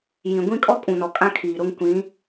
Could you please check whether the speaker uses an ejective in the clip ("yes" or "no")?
yes